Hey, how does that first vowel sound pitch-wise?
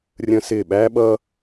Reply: high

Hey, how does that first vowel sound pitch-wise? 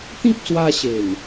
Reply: high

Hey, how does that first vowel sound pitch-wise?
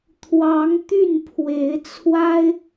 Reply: rising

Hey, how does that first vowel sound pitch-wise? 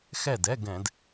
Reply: falling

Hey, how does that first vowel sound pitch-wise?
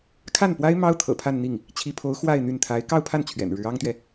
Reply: falling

